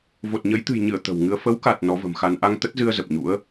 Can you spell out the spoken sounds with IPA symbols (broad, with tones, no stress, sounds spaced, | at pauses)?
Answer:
v o˨˩ t̚ ɲ ə˨˦ j t̪ ɨ̤˨˩ j ɲ ɨ˧˩ ə̯ t̪ ə̤˨˩ w ŋ ɨ˧ ə̯ f ə˨˦ w k a˨˩ t̚ n ɔ˨˦ v ə̤˨˩ m x a˧ n ʔ a˧ ŋ t̪ ə˦˥ t̚ z ɨ˧ ə̯ z ə˨˩ p̚ ɲ ṵ˧˥ ə̯